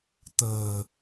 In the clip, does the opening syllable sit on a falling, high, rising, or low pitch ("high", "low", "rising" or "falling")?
low